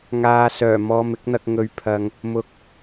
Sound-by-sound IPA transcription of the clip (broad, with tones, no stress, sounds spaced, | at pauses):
ŋ aː˨ s œː˨˩ m ɔː˧ m ɪ˨˥ k̚ n̪ ɐ˧ k̚ ŋ ɵ˨˧ ɥ pʰ ɐ˨ ŋ | m ʊ˨˥ k̚